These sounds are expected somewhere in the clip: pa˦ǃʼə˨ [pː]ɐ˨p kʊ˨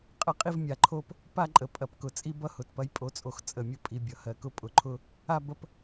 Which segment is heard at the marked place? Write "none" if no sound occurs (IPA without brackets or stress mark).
pʼ